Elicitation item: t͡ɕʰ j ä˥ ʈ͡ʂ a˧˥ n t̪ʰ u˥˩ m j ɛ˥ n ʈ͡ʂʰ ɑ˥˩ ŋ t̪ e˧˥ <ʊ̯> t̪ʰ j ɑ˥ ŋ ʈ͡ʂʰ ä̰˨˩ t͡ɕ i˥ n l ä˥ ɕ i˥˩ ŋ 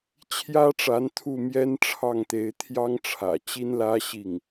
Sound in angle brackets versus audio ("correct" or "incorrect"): incorrect